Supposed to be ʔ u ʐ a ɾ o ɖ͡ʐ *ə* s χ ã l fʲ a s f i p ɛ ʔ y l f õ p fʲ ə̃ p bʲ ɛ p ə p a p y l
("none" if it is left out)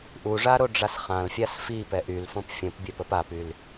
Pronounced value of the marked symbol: a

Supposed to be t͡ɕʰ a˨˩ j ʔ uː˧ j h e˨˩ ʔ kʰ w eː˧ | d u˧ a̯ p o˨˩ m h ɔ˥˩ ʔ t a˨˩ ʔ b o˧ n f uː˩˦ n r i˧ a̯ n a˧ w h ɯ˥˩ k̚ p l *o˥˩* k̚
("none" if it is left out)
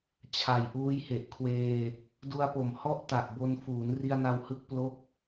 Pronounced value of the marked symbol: o˥˩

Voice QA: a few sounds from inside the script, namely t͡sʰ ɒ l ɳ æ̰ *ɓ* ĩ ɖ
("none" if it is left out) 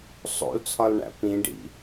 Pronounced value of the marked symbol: p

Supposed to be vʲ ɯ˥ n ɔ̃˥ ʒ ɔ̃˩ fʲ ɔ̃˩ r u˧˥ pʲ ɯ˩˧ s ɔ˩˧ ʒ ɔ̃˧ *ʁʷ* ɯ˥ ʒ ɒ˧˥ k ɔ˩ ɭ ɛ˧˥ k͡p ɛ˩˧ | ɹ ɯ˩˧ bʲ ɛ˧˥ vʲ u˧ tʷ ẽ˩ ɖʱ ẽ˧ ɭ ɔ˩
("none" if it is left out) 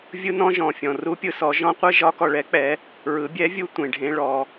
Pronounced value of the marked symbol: qʷ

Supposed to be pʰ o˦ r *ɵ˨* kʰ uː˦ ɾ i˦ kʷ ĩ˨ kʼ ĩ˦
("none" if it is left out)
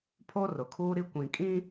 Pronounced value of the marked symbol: ʊ˨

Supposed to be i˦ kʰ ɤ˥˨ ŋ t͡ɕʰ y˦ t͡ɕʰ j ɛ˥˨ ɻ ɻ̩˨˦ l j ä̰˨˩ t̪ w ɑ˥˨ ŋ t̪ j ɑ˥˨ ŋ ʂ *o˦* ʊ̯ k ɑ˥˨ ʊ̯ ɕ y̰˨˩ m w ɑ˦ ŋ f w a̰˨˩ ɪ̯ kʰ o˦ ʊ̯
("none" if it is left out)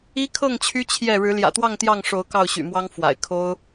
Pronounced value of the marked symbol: o˨˦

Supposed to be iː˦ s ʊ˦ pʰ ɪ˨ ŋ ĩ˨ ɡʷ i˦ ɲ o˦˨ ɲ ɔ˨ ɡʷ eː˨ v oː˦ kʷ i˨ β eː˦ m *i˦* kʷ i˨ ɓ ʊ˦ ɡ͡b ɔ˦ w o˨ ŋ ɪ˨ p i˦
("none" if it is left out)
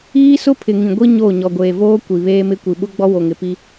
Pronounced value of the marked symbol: ɪ˦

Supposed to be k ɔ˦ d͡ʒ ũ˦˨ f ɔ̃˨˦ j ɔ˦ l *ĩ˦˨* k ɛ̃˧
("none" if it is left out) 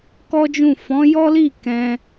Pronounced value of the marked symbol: i˦˨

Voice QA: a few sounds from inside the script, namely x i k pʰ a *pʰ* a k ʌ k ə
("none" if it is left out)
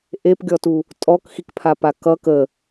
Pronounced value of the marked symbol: p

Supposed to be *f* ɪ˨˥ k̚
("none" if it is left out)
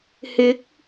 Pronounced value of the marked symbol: h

